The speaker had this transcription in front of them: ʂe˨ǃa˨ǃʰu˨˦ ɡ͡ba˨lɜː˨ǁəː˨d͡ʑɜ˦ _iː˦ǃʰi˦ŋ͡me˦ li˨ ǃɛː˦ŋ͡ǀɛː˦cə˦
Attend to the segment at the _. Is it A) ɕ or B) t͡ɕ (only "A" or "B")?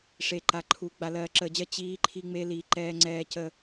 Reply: B